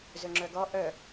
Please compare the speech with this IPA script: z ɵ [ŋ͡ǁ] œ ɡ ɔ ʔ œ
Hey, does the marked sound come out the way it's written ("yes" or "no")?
yes